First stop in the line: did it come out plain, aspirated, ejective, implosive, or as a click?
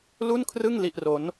aspirated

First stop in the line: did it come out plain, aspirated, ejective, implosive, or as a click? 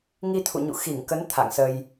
aspirated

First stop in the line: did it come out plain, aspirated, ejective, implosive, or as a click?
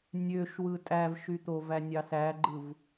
ejective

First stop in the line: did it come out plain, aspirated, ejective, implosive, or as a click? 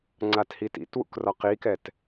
click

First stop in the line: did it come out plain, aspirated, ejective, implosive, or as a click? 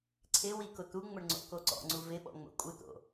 click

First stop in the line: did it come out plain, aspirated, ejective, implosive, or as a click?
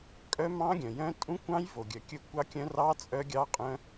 ejective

